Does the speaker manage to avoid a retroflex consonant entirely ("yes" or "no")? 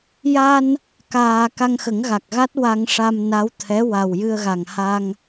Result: no